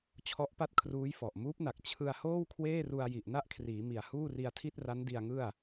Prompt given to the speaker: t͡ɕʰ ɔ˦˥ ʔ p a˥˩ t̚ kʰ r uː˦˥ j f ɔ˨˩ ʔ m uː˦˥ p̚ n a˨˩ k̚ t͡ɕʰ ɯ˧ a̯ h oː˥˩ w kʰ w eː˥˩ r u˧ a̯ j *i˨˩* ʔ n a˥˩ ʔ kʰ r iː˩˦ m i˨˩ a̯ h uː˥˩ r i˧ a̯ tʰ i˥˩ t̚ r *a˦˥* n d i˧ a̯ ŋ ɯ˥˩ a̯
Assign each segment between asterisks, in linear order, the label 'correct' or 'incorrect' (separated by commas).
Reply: correct, correct